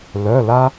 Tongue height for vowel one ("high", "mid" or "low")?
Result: mid